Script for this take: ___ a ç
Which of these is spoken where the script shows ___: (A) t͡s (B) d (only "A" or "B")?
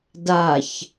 B